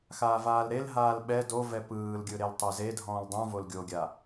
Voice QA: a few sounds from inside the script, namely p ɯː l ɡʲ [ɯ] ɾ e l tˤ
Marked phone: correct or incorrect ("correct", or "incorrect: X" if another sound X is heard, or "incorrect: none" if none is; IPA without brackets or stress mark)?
correct